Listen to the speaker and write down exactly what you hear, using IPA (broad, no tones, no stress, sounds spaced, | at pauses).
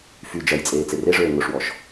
f y d͡ʒ ɐ j t͡sʼ eː t͡s e r e ʐ øː ŋ ʊ ʂ w ɔ ʃ